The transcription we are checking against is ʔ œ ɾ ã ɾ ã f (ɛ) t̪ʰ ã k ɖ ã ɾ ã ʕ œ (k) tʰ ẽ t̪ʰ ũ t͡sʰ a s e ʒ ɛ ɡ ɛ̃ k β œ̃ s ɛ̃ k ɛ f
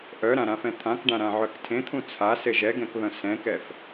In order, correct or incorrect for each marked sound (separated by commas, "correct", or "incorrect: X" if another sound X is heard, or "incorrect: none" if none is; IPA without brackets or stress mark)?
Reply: incorrect: ɛ̃, correct